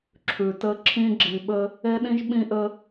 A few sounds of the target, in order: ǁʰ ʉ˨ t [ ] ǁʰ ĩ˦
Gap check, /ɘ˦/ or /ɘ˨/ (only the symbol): ɘ˦